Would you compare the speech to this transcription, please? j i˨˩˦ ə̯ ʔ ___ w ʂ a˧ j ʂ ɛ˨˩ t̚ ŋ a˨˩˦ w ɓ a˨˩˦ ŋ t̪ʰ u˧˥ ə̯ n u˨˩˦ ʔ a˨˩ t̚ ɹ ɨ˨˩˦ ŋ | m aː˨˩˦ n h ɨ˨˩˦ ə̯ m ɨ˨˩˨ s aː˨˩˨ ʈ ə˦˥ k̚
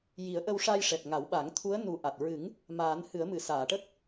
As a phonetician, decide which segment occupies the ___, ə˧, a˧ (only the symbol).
ə˧